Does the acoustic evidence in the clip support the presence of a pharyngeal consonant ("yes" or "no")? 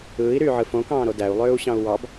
yes